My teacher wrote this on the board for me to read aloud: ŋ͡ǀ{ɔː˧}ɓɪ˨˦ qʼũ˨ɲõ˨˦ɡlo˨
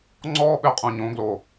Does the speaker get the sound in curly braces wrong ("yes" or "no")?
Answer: yes